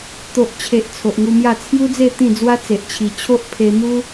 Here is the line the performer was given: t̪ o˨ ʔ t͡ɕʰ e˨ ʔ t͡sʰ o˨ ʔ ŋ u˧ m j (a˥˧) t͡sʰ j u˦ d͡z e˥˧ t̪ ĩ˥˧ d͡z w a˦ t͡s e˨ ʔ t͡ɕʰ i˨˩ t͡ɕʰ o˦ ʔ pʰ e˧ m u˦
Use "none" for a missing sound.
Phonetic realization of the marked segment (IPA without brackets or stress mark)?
a˥˧